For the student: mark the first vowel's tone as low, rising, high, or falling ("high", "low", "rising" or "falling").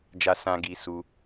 low